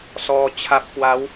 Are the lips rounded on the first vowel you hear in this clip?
yes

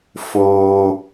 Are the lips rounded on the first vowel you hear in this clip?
yes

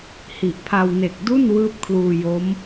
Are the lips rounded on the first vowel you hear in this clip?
no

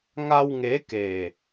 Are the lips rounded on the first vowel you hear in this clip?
no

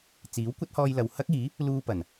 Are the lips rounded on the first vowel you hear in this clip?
no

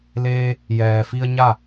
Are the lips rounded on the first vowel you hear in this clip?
no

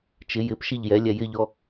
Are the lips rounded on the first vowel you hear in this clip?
no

